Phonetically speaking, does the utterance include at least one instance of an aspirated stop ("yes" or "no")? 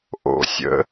no